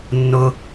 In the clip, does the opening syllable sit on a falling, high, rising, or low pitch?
high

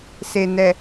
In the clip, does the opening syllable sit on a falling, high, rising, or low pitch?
low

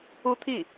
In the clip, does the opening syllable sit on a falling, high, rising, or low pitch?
falling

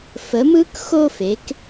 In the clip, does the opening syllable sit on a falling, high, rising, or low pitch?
rising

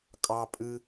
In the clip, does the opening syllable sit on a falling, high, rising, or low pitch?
high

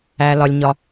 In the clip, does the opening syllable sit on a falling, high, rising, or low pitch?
low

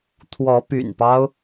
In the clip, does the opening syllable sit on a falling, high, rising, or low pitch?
rising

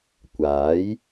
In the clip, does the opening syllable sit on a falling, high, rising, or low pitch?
rising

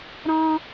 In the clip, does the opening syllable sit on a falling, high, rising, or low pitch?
high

